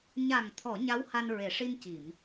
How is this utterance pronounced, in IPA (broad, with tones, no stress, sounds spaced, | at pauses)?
ɲ a˨˩ ŋ t̪ʰ ɔ˨˩˨ ɲ a˧˥ w h a˧ n ɹ e˨˩˨ ʂ i˧ n c i˨˩˨ m